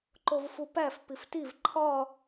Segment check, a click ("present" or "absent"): present